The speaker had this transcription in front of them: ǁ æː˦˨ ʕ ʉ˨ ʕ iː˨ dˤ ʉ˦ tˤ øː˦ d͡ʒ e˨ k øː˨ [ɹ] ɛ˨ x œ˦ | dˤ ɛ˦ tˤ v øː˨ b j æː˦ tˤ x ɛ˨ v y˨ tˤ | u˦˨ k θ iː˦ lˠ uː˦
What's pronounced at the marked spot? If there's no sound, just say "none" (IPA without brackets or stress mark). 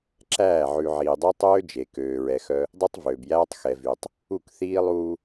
ɹ